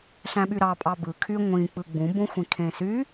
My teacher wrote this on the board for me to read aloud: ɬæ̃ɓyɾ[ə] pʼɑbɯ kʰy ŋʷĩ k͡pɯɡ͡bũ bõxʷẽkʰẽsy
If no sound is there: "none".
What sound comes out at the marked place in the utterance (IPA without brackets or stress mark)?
ɑ